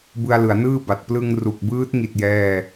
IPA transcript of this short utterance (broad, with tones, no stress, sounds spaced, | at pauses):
b ɯ˧ a̯ l ɯ˩˦ a̯ n ɯː˥˩ b a˨˩ t̚ p l ɯ˧ ŋ r u˨˩ k̚ b ɯː˦˥ t̚ ŋ i˨˩ t̚ j ɛː˥˩